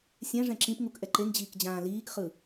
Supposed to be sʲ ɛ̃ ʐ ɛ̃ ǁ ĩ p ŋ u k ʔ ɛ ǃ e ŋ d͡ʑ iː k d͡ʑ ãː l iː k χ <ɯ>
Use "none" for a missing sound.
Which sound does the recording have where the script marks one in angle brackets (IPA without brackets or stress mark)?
ɯ